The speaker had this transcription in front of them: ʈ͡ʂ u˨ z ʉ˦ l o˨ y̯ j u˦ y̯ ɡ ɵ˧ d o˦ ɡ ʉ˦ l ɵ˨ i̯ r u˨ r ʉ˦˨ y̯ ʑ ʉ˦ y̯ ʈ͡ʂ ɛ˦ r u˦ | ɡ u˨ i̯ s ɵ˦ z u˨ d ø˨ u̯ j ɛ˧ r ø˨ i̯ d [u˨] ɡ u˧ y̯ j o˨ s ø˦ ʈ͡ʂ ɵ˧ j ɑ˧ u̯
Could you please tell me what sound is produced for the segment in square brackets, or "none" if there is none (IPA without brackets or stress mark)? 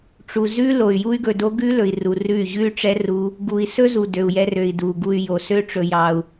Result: u˨